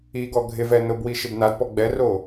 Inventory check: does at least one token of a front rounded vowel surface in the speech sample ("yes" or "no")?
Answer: no